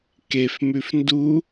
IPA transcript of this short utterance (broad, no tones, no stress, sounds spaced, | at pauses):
k e f m ʉ f n d u